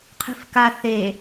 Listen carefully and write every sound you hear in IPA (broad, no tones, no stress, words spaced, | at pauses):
qʰi̤fka θe